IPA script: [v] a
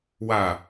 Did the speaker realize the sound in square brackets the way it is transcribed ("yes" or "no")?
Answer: no